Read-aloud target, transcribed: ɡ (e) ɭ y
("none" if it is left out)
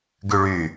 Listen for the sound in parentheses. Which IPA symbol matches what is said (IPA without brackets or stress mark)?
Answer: y